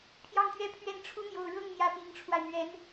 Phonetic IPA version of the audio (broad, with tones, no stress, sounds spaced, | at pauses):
pʰ j ɑ˥˩ ŋ t̪ ɥ ɛ˥ pʰ ɥ ɛ˥˩ n ʈ͡ʂʰ u˥ n̪ j o˥˧ ʊ̯ ɻ ɤ˥˩ ŋ n̪ j ä˧˥ p i˧˥ ŋ ʈ͡ʂʰ w a˧ ɪ̯ n̪ ɥ ɛ˧˥ n